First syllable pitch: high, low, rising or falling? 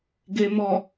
low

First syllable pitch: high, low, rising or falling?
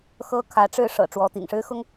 high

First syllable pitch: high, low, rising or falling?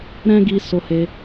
high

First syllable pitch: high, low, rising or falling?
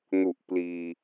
low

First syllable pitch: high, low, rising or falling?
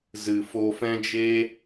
low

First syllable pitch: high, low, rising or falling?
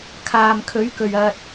low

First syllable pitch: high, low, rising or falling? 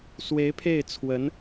rising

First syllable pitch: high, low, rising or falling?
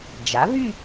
rising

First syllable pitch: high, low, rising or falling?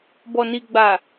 low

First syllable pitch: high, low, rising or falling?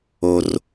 low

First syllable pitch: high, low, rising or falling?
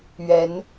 rising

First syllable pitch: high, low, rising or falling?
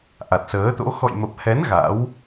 low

